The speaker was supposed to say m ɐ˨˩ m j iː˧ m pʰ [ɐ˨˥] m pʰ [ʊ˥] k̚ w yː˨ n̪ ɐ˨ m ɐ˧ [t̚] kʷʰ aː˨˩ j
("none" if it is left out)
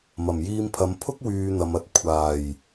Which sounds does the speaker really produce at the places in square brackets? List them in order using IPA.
ɐ˨˧, ʊ˥, t̚

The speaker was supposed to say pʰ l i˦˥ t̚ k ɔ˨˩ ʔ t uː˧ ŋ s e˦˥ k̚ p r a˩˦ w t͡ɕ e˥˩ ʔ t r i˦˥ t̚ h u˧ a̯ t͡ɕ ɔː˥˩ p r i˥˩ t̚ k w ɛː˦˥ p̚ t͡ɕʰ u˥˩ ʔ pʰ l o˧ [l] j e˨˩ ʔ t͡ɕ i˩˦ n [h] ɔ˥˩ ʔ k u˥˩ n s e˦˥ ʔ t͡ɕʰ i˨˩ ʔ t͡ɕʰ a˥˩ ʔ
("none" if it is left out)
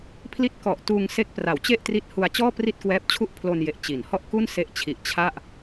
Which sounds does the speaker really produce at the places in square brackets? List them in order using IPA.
n, h

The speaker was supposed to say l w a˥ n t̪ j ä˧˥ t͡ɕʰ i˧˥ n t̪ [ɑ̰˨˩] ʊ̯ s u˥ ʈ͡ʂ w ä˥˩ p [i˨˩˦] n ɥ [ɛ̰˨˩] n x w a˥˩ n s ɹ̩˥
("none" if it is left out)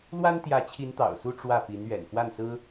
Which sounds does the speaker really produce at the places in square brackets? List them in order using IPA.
ɑ̰˨˩, i˧˥, ɛ̰˨˩

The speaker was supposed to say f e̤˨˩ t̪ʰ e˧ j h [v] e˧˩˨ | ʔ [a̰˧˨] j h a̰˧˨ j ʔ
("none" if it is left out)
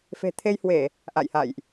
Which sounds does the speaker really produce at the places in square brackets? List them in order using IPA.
w, a̰˧˨

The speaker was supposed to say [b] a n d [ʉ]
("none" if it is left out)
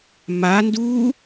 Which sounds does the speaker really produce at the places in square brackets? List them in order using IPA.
m, u

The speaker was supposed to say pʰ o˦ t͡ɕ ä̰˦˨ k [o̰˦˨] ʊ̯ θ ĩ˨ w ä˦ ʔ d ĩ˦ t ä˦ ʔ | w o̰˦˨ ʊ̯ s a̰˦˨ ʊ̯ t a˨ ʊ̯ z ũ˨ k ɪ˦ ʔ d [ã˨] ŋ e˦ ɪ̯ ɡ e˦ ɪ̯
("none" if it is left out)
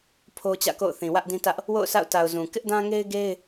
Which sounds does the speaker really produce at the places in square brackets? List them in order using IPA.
o̰˦˨, ã˦

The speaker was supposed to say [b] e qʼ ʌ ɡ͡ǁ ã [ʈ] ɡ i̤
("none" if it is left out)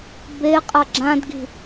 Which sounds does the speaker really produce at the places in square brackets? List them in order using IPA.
b, d

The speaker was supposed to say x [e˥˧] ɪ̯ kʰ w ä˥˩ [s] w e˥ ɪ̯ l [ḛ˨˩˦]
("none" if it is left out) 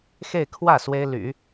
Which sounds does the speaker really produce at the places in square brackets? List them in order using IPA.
e˥˧, s, y̰˨˩˦

